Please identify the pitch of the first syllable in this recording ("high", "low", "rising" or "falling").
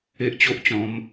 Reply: high